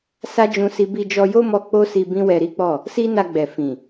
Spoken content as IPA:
sa˦d͡ʒũ˧si˧ bi˧d͡ʒɔ˧jo˦mɔ˧ k͡po˦si˧ bĩ˦wɛ˧ɾi˦k͡pɔ˦˨ | si˦na˧ɡ͡bɛ˨ fĩ˨

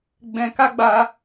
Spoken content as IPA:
ɡ͡bɛ̃˧ ka˦ɡ͡ba˧

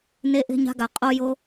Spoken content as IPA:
ne˦ʔe̤˦ɲa̤˦ɡa˨ qʼo˦jo˦

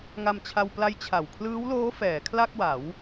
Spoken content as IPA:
ŋa˧mt͡ɕʰa˧wpla˦˥j t͡ɕʰa˨˩w kʰlɯː˦˥wloː˦˥ fɛː˩˦kʰla˥˩k̚wa˩˦w

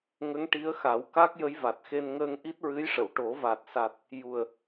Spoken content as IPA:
ŋə˧˥ŋʈi˧˥ə̯xa˨˩˦wka˦˥k̚ jə˧˥jva˨˩t̚xe˧n ŋəː˧ŋʔi˦˥t̚ɹɨ˧˥jʂə˨˩˨w ʈo˨˩˦va˨˩t̚sa˨˩t̚ | ju˨˩ə̯

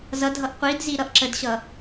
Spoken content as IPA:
zʌ dʱʌʔqʷidzi ɾʌʔǁədɕʌ

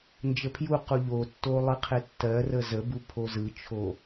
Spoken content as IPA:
nd͡ʒəpʰjuqu ʎotːo lˠɯqʰetːɜrə zəbu pʰozɯt͡ʃʰo

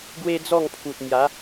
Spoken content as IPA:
ɡwe˦d͡zɔ˥˧ŋpʰu˨t̚mja˨˦

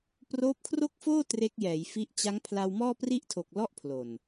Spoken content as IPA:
proː˦˥p̚kʰro˥˩k̚foː˥˩ tre˦˥k̚jɛː˩˦j fi˦˥ʔ t͡ɕa˦˥ŋ pʰla˧wmɔː˥˩pri˥˩ʔtʰo˨˩k̚ lɔ˥˩ʔpʰlo˨˩n

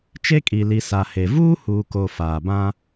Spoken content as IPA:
t͡ʃe˦kʼi˨li˨ sa˨he˨ vuː˦huː˨ko˨ faː˨bã˦

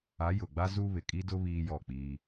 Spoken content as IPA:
a˨˦jʊ˨ɡ͡ba˦ zuː˦βɪ˨ kʼi˦dʊ˦ βiː˦jɔ˦˨k͡piː˦

